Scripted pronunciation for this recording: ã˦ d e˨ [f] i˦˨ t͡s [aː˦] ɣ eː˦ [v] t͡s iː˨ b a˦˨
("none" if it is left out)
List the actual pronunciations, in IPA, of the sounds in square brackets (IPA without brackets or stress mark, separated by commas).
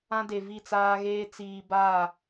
v, aː˦, none